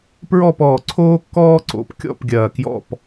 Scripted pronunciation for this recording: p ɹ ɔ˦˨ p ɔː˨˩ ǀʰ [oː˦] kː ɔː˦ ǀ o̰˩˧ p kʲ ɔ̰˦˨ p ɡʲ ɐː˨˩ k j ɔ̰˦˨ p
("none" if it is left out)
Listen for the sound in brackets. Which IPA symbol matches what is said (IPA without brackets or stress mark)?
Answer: oː˦